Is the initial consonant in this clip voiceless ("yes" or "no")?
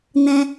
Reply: no